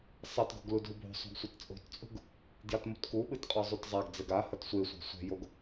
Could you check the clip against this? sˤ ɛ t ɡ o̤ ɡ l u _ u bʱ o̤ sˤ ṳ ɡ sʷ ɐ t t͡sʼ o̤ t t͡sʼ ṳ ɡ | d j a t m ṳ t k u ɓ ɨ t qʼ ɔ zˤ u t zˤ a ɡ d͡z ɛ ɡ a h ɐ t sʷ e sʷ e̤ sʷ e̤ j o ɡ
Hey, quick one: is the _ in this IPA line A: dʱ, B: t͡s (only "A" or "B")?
A